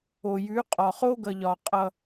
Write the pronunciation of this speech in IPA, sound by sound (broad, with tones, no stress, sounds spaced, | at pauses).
o˨ j ʉ˨˦ qʼ ɒ˨ χ o˦ ɡ ʌ˨ ʎ ɒ˨ qʼ ʌ˦